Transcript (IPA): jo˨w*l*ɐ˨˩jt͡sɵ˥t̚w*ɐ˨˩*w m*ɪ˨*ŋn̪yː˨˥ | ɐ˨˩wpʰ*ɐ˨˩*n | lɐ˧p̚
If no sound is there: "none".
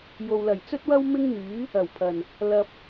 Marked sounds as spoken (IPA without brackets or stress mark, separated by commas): l, ɐ˥, ɪ˥, ɐ˨˩